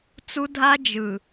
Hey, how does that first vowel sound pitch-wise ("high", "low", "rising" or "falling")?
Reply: high